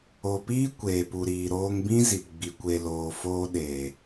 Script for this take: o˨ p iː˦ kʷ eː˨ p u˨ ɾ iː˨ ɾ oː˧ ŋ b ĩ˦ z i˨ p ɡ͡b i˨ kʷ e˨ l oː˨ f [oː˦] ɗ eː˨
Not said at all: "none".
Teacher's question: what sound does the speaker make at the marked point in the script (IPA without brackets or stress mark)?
oː˧